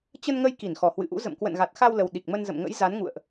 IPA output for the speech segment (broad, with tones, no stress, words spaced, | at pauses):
t͡ɕə˧nŋə˧j ki˧˩n xɔ˨˩hwɨ̰˧˨ʔṵ˧˥ zə̰˧˨m kwə̰˧˨nɣa˨˩t̚xa˧wlə˨˩w ɗi˨˩k̚mə˧nzə̰˧˨mŋə̰˧˥j za˨˦nŋṵ˧˨ə̯ʔ